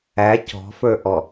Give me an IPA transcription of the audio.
æ c ɔ̤ f ə˞ ʔ ɔ

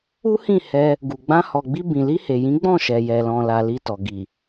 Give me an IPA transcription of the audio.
u˦ h ĩ˦˨ h ɛ˧ | ɡ u˨ ɡ͡b ã˧ h ɔ˨ ɡ͡b i˧ b ĩ˨ l i˧ h e˨ j ĩ˨˦ ɡ͡b ɔ̃˦˨ ʃ ɛ˨ j ɛ˨ l ɔ̃˨ l a˨ l i˧ t ɔ˨ ɡ i˨

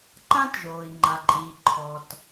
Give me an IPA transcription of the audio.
ǃ ã˥ t ʒ oː˩ i̯ ŋ͡ǃ a˩ ǃʼ iː˩ ǃʰ ɔ˩ t

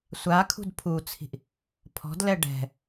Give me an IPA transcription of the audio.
sʷ a kʰ ṳ d pʰ u t͡sʰ i̤ ʔ | pʰ ɔ̤ d l ɛ ɖ ɛ̤

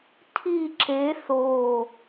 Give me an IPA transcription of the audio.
tʰ i ǁ e θ o

